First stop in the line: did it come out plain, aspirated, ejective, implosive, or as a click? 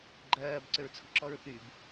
click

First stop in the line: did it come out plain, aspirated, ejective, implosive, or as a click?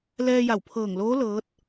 aspirated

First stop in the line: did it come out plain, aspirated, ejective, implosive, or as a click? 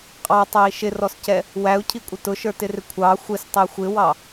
ejective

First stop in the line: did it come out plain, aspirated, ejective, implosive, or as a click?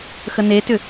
plain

